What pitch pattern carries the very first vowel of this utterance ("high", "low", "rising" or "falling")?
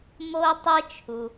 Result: high